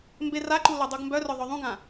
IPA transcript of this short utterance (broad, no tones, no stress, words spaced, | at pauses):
mberaǃu lœdˤuɡmbœrœ ðˤœðˤũɡã